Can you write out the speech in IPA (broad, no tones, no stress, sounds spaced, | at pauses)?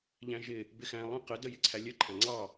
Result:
ʎ æ̃ ʒ ɪ | b ɪ x æ̃ lˠ ə̃ q ə d ə j ɪ ǀʰ æ lʲ ə ǃʰ æ̃ ŋ͡ǀ ɑ